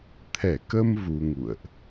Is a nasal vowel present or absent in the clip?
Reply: absent